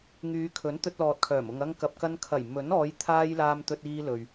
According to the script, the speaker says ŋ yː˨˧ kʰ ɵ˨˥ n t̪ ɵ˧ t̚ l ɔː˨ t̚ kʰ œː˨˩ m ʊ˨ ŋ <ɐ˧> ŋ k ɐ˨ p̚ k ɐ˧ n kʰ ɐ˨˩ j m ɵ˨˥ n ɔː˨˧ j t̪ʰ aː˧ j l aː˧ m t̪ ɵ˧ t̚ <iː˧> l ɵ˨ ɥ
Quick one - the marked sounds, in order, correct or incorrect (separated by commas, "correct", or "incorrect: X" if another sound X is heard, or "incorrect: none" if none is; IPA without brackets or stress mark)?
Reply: correct, correct